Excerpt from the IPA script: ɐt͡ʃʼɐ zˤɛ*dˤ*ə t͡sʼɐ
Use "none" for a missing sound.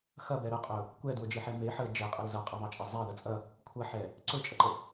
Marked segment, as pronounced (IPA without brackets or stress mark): ð